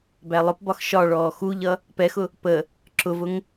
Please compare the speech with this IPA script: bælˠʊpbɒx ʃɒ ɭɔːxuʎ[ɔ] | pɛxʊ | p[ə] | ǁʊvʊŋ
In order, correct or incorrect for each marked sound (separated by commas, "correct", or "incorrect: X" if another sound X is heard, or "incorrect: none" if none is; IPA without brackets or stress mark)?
incorrect: ʌ, correct